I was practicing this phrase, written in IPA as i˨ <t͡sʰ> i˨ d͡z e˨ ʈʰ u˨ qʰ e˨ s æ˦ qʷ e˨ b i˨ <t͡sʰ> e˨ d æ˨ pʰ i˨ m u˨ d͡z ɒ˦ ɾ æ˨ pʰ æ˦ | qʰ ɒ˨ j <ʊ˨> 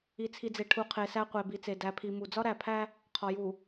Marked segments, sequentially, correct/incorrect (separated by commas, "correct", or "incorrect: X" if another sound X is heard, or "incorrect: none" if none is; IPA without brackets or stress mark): correct, incorrect: t͡s, incorrect: u˨